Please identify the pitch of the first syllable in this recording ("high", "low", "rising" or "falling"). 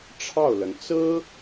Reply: falling